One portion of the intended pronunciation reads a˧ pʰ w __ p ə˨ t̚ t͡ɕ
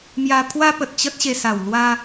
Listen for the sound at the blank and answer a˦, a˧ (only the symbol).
a˦